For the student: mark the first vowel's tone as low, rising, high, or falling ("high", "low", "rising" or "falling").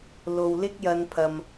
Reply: low